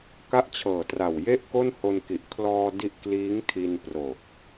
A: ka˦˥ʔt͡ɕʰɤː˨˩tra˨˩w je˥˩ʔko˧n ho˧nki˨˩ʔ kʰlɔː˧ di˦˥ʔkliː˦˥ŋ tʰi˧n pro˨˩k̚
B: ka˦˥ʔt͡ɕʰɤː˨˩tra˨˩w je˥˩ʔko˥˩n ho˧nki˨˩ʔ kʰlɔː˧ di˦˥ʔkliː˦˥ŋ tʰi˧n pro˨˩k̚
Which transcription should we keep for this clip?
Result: B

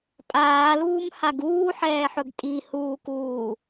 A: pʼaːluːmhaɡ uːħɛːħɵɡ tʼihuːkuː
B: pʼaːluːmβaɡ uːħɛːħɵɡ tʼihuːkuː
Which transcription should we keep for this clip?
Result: A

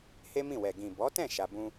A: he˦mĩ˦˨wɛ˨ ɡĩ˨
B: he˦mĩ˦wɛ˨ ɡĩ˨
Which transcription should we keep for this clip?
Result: A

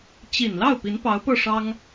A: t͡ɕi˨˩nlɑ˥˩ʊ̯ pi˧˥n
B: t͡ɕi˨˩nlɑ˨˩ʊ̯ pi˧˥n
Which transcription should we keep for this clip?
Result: A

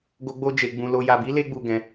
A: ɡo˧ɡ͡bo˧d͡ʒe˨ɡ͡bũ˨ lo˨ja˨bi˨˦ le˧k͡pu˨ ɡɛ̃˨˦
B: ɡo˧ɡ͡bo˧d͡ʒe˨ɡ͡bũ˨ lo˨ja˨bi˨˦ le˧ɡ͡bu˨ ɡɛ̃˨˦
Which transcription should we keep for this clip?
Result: B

